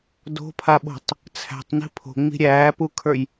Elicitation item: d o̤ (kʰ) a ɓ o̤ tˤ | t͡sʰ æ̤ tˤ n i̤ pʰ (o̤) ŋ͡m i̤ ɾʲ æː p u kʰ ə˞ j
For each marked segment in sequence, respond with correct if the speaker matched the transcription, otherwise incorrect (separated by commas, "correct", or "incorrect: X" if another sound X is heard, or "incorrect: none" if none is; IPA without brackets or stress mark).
incorrect: pʰ, correct